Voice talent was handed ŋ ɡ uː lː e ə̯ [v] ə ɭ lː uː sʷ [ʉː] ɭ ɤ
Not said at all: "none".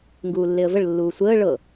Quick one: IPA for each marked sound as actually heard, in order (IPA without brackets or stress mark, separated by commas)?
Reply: v, əː